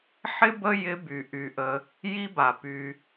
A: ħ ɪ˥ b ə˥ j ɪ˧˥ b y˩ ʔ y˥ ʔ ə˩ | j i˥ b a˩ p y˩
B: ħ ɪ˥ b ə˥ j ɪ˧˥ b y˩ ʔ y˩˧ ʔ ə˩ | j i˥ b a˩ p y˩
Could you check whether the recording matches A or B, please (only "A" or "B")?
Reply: B